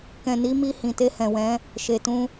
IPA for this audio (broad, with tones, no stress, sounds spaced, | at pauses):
k ɛ̃˨ n i˨˦ m i˧ h ĩ˨ t e˧ h ɛ̃˨ w ɛ̃˨˦ | ʃ e˨ t ũ˧